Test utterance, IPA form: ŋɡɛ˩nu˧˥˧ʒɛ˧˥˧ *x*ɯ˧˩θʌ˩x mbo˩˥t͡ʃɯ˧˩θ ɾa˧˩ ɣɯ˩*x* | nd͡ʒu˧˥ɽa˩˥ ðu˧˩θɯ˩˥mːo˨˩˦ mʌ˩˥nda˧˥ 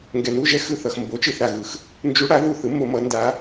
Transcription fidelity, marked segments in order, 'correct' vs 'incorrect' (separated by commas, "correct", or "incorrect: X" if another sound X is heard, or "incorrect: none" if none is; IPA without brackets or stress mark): correct, correct